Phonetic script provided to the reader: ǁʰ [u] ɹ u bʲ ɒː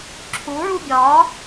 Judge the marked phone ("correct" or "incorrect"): correct